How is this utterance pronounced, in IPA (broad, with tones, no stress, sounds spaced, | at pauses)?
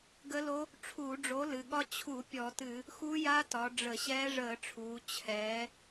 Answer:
ɡ ə˦˥ l o˦˥ | ʈ͡ʂʰ uː˧˩˧ ɖ͡ʐ o˨˥ l ɨ˩˧ ɠ ɒ˦˥ t͡ɕʰ u˧˩˧ pʲ ɔ˧˩˧ t ɨ˧˩˧ | x u˦˥ j a˦˥ t ɒ˩˧ ɖ͡ʐ ə˧˩˧ ɕ ɛː˦˥ ʐ əː˧˩˧ ʈ͡ʂʰ uː˩˧ t͡ɕʰ ɛː˩˧